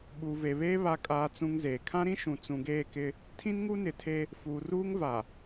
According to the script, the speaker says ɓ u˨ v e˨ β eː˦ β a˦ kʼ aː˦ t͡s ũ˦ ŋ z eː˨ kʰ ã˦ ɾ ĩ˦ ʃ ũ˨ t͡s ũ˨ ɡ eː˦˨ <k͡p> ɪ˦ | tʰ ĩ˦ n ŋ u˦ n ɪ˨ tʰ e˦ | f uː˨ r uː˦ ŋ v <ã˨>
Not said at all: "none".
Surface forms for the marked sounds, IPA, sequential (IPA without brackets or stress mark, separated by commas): k, a˨